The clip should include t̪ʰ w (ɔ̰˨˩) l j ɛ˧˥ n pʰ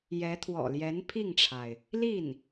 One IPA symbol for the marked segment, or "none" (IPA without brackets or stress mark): ɔ̰˨˩